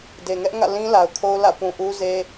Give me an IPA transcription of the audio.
de˨ŋɛ˦ʔŋä̰˦˨lĩ˦ la˨ʊ̯kʰo˦ʊ̯lä̰˦˨ pũ˨ʔu˦ze˦

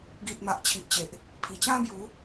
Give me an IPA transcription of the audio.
ɡi˨t̚ ma˨ʔt͡ɕʰi˨ʔt͡ɕe˨ʔ | pʰi˨˩t͡ɕã˦ bju˨˦

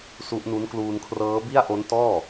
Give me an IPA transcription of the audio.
su˦˥ʔnu˦˥n kluː˧nkʰrɤː˦˥ bi˥˩a̯ʔo˦˥ntɔː˥˩

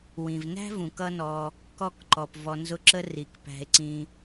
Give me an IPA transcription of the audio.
wĩ˩vnæ̤˥vũ˩k ʌ˥nɔ˨ | kɔ˥kǃɔ˩pvɔ˨ nzʊ˦ǁə˥ ri˩kpæ̤˨e̯ǀĩ˨

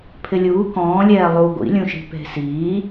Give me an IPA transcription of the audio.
pʰɪlʲuː kɔ̃ːlʲɛː lˠu ɡʷḭlʲũʃi̤ pe̤siː

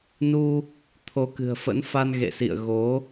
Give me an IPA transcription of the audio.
nu˧ | t̪ʰo˨˦kɨ̤˨˩ə̯fə̰˧˥nfa˧n ɣḛ˧˨sḭ˧˨ə̯ɣo˨˦

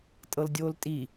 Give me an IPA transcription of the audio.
tʼɤldʲoːltʼi

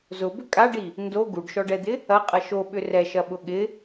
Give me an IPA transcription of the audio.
zʊbʏ kʼaɖi | ndo ɡuɖʃɔɖɛd̪ɪ | ɐqʼɐ ʃoɓʏ rɛʃɐɓʊ ɠɪ

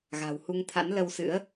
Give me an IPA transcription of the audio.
ɣa̤˨˩whu˧ŋt̪ʰa̰˧˥n lə˧wsɨ̰˧˥ə̯

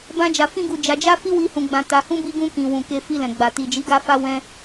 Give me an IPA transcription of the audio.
bã˦d͡ʒa˧fĩ˦ɡu˧ d͡ʒa˧d͡ʒa˦fi˦ wi˦hũ˧ ɡ͡bã˧ta˧hũ˦ bi˦ɡũ˦ kĩ˧ wũ˨ke˧ fi˧lɛ̃˨ ɡ͡ba˨ ti˨d͡ʒi˨˦ɡa˧ fa˦wɛ̃˦

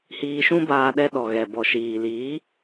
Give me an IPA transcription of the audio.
hiː˧ʃũ˦baː˧ ɗɛ˧ɗɔ˨ɣɛ˨ bɔ˨ʃiː˨liː˨˦

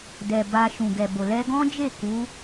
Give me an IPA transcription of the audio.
dɛ˨ ba˧ʃũ˨ ɡɛ˨bo˨ lɛ˧ɡɔ̃˦d͡ʒe˦˨ ku˨˦

